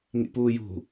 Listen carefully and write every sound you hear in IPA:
ŋḭpuːjṳ

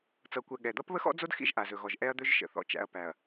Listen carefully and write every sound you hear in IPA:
t͡sʌ˨kʷɛ˨ ɠɛ˨ d̪ʌ˦pβə˦xɔ̰˦d͡zo˦d xḭ˦ʒʔa˨zɵ˨ɣɔ˨ʒ ʔɛ˦ɐ̯d̪ɵ˦ʒ ʃə̰˨θɔ̰˨t͡ʃæ̰˨ɐ̯ pæ˨ɐ̯

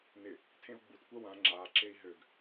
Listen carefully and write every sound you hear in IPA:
nɪ | tʰẽu̯ɡ͡butkʷɜ wã ŋ͡ǁaǁei̯ ɦøɡ

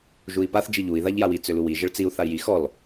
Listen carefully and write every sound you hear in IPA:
ʒui̯paθ d͡ʒiʎui̯ ðaʎjawi t͡sʏluwi ʒəɭt͡siu̯ θai̯ji xɔl

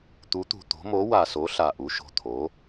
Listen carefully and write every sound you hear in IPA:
t̪u˩˥t̪ṳ˨˩t̪o̤˩˥ mo˩˥wa˨˩so˩˥ ɬa˨˩ʔu˩˥ʃo̤˨˩t̪ʰo˩˥

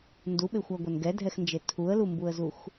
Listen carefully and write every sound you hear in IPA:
nduɓexʷæɡʷɛn ɡɛdʱɛxnd͡ʒe tʰuə̯lumbuə̯zux

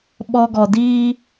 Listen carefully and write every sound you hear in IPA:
ɓɔ˧ɡɔ˨diː˦

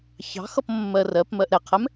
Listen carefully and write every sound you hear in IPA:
çɑ̤xʌp mːɜrɜpmɜʔ ɾɛqʰɛm

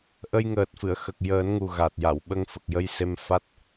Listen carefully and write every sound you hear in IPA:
ʔə˧jŋəː˨˩t̚fɨ˨˩˨ə̯xə˨˩k̚ jəː˨˩˦nŋu˨˩ɣa˨˩t̚ ja˨˩˨wɓə˧ŋfə˨˩k̚jə˧j se˧mfa˦˥t̚

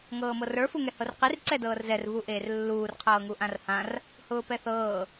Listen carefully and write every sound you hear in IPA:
ŋɤːmɤrə˞ fuŋɛhɤrqir ǀɛdɤːrzɛr vuʔeːrlːuːr qʰɤːŋuʔãrhãr | hʊːpɛθɤː

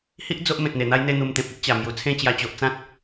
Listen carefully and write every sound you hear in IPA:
hi˦ʔ d͡zo˦ʔmẽ˨t̚n̪e˨˩n̪a˦j n̪e˦n̪u˧mt̪ẽ˨p̚ i˦ʔt͡ɕa˨˩ mju˨˩t͡sʰẽ˥˧t͡ɕja˧t͡ɕo˨ʔ t͡sã˦t̚

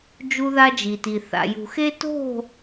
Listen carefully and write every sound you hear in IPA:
d͡ʒu˦ða˦d͡ʒi˨ti˨ θa̰˨jṳ˨xe˦ to̤˦˨

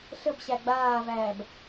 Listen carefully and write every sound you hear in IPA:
ɬəbɕæ ɡ͡baːvæːb

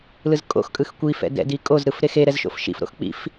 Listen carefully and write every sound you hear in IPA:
lɯzkʼo̰xkʼɯx kʷifɛ̰ dɛ̰di kʼozɾɯf ɾexeɾɛz ʃo̰fʃḭfɾo̰x k͡pḭf

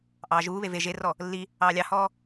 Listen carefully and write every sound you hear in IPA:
ʔɑːʒuːβe ve ʒerɔ | lːi | ɑːlʲɑhɔː

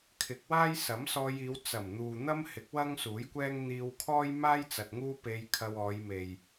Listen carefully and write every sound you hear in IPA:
kʰɪ˨˥k̚waː˥j sɐ˨˥msɔː˧jiː˨˧w t͡sɐ˨˩mn̪uː˨ n̪ɐ˥m hɪ˨˥k̚ wɐ˥ŋsuː˨˥jkʷɛː˥ŋ n̪iː˧wkʰɔː˥jmaː˥jt͡sɐ˨t̚ ŋuː˥pe˧jkʰɐ˧wɔː˨˧j me˨j

